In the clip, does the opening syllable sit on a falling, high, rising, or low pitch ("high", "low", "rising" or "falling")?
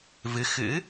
rising